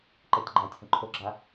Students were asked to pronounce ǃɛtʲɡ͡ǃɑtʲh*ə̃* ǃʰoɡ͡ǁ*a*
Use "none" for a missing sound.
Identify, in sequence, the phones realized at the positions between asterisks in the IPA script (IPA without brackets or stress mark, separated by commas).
ə̃, a